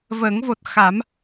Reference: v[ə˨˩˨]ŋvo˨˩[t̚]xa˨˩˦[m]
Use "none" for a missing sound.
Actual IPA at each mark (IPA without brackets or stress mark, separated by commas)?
ə˨˩˦, t̚, m